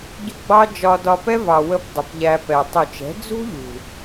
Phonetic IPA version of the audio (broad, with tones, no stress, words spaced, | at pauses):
ɟʊ˦ɡ͡bɑ˦ d͡ʒɒ˧dɒ˧pɛ˦ vɑ˨wə˧p dˤə˨pʎæ˧pɛ˨ tˤu˨t͡ʃɛ̤˨˦ d͡zṳ˦ʎṳ˨